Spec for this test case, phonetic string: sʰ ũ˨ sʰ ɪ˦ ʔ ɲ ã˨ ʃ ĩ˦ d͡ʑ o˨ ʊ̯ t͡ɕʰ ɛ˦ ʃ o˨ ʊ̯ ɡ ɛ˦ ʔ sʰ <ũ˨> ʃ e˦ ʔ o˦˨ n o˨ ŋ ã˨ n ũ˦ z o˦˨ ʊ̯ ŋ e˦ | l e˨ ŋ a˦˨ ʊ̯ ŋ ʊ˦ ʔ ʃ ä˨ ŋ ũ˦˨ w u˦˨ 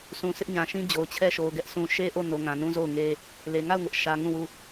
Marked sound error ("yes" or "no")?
no